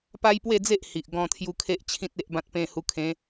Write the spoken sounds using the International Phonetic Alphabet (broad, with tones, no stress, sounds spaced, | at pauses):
p a˦ j p w e˥˧ d͡z e˦ ʔ h i˨ ʔ ɡ ɔ̃˥˧ t̪ʰ j u˦ kʰ e˦ ʔ t͡ɕʰ ĩ˦ t̚ e˦ ʔ b ã˦ t̚ p ẽ˧ h u˧ kʰ ẽ˨˦